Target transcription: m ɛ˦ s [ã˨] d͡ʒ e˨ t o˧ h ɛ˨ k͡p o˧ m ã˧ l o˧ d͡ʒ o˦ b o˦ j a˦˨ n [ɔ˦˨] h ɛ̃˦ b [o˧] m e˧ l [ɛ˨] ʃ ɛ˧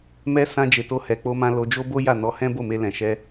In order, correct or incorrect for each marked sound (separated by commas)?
incorrect, incorrect, incorrect, incorrect